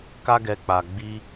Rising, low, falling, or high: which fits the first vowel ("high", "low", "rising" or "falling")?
high